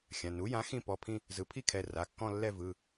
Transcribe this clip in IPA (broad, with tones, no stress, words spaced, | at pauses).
xʲã˩˧˩ nu˩˥jã˩˥ xĩ˥˧ pɔ˩˧˩pʰĩ˥˧ | zɯ˩˥pʰi˥˧kʰɛ˩˧˩ ra˩˧˩kːɔ̃˥˧lːɛ˥˧ vɯ˩˧˩